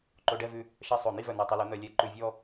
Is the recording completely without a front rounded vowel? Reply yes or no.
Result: no